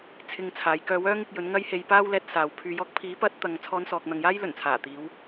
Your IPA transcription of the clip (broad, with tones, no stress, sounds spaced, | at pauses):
t͡sʰ ɪ˧ ŋ t͡sʰ aː˨˧ j k œː˧ w œː˥ ŋ ɪ˧ k̚ j ɵ˨˥ n ŋ ɐ˥ j h e˧ j p aː˥ w l ɛː˨˥ t̚ s aː˨ w pʰ yː˧ j ɔː˥ k̚ pʰ iː˨˥ p ɐ˨˥ t̚ t̪ ɐ˧ ŋ t͡sʰ ɔː˧ n s ɔː˨ k̚ n̪ ɐ˨ ŋ j aː˥ j l ɵ˨˩ n t͡sʰ aː˨˩ t̪ iː˨˧ w